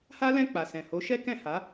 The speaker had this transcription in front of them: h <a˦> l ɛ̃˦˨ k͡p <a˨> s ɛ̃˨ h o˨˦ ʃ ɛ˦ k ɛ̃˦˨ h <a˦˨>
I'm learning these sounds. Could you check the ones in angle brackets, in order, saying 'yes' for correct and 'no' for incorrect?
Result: yes, yes, no

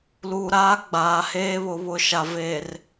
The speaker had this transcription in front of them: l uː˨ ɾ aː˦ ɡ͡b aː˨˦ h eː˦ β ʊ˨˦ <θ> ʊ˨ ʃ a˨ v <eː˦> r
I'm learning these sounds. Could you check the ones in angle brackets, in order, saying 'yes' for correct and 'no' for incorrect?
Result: no, no

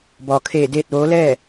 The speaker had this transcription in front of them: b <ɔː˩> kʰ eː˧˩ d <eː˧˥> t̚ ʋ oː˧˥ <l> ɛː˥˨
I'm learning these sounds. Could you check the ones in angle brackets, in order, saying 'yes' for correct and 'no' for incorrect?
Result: yes, no, yes

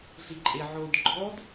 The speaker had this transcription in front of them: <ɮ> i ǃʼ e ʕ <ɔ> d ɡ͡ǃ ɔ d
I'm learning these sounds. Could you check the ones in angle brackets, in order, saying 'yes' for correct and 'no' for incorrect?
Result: yes, no

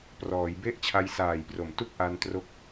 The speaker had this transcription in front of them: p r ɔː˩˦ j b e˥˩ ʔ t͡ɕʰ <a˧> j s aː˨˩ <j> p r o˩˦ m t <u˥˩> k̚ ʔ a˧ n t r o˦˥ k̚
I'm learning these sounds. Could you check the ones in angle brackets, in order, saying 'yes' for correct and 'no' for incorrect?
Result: yes, yes, yes

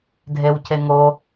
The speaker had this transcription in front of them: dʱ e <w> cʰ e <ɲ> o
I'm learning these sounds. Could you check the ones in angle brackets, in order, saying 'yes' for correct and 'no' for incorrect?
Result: yes, no

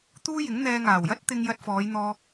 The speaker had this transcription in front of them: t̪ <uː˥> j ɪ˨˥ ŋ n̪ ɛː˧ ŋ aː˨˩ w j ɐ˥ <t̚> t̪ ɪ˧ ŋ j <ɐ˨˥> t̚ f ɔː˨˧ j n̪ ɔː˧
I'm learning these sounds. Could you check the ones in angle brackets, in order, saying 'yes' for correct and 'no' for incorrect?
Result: yes, yes, no

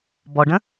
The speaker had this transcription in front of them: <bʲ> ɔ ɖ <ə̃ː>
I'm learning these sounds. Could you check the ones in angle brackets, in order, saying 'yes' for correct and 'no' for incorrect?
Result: no, no

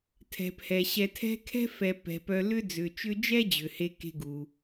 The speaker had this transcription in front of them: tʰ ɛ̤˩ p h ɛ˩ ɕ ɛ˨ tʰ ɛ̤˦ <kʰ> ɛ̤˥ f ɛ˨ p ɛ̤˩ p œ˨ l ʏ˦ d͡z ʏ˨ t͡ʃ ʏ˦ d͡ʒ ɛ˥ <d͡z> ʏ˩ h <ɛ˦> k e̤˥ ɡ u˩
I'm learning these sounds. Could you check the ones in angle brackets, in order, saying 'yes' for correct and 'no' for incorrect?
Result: yes, no, no

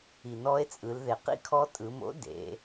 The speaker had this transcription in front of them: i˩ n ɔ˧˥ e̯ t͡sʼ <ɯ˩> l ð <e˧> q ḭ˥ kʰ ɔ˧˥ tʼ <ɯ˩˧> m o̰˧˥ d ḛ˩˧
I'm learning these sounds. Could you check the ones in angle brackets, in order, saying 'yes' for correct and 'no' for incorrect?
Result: no, no, yes

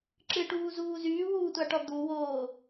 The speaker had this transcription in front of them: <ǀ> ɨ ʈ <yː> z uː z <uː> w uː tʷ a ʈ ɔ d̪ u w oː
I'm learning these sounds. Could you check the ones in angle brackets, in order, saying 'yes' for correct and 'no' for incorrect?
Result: no, no, no

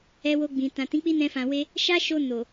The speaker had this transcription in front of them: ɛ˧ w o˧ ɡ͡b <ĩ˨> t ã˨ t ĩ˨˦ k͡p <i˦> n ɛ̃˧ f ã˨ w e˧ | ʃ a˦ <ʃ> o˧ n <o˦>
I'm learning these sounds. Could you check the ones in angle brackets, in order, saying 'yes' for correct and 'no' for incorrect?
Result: yes, yes, yes, no

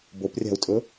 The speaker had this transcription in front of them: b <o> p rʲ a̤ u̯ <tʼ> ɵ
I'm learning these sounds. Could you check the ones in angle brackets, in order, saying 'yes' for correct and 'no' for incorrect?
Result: yes, yes

